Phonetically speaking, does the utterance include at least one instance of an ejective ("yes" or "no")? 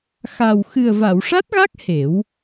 no